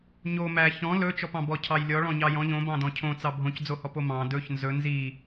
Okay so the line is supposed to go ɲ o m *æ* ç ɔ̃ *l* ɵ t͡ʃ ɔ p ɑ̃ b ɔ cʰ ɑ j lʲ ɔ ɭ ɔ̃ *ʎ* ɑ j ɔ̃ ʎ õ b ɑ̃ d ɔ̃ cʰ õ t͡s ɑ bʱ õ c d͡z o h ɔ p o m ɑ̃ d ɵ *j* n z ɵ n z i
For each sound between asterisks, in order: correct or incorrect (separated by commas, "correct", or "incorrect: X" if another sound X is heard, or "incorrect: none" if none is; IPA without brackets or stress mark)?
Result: correct, correct, incorrect: ɲ, incorrect: ç